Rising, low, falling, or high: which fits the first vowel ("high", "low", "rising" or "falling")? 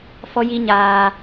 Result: high